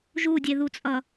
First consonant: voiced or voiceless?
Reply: voiced